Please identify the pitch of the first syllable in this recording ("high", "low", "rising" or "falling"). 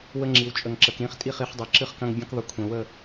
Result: high